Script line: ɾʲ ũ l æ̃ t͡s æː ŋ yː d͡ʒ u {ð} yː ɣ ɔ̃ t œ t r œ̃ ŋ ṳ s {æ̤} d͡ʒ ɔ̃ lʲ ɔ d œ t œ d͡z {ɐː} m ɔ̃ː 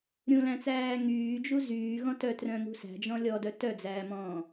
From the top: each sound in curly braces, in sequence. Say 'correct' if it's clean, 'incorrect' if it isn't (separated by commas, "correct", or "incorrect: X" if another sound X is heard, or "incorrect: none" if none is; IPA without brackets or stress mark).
incorrect: z, correct, incorrect: æː